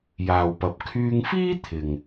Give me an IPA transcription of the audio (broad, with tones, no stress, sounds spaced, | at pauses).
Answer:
j aː˨ w p ɐ˨ p̚ kʰ yː˧ ŋ f iː˥ t̪ʰ ɪ˨ ŋ